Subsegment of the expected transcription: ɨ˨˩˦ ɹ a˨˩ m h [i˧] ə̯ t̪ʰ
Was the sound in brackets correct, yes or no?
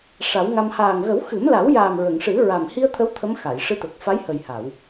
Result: yes